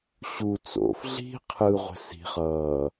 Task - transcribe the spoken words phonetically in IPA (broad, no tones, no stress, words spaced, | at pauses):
ɕu t͡so̰f ɮi̤ qʰɯ ʁʷɛ̤si̤ χʌː